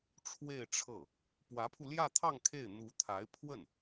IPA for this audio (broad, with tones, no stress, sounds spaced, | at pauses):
ʈ͡ʂʰ w e˥˧ ɪ̯ ʈ͡ʂʰ ɤ˥˩ | p w ä˧˥ pʰ u˧ l j ä˥˧ t̪ʰ ɑ˥˧ ŋ kʰ e˥˩ ɪ̯ n̪ u˧˥ t̪ʰ a˧˥ ɪ̯ pʰ w ə˥˩ n